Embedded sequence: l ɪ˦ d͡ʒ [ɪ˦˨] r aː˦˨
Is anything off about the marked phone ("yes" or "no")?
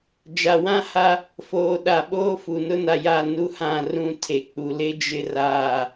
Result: yes